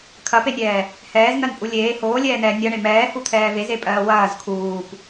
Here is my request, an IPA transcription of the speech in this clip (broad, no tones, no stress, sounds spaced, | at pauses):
kʰ ɐ p e nʲ ɛː | h ɛː z n̪ ɜ n pʼ u lʲ eː h oː lʲ ɛː n ɛː nʲ ɐ ɳ e m ɛː h u t̪ʰ ɛː v e z e pʼ ɜː w ɐː z kʰ uː p